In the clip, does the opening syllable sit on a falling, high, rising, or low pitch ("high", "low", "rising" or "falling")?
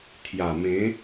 low